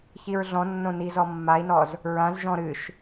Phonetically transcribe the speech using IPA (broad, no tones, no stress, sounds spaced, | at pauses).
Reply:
ç i ɹ ɮ ɔ̃ nː õ n i z ɔ mː a i̯ n ɔ z | ɹ ã z ʒ ɔ̃ ɾ ɨ ʃ